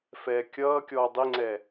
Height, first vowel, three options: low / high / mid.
mid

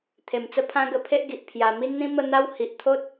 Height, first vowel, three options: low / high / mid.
mid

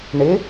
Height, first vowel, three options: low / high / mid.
high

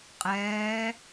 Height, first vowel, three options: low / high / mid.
mid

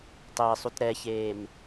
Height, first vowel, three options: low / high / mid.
high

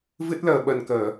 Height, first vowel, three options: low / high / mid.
high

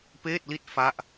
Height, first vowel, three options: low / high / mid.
mid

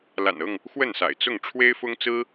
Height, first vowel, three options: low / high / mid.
low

